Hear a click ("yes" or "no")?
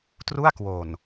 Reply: no